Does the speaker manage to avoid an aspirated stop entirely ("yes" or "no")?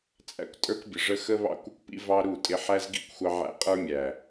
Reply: yes